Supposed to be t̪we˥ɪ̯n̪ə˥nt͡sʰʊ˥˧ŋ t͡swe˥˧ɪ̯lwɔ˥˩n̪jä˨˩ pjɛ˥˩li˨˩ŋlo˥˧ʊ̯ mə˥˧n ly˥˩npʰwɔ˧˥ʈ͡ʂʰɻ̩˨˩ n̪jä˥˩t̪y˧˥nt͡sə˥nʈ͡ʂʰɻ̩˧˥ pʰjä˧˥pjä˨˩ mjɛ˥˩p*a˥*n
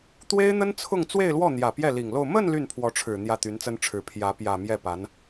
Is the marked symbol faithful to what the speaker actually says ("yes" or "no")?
no